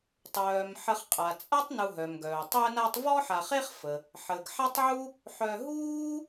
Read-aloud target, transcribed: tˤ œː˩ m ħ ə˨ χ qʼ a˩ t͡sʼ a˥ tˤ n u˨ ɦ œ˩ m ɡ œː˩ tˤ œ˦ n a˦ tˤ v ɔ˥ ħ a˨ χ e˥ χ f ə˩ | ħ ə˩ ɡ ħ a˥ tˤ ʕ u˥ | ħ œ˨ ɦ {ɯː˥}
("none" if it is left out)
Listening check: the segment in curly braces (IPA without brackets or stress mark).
uː˥